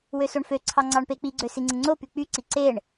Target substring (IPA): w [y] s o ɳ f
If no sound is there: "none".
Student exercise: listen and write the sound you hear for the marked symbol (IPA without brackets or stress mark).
ø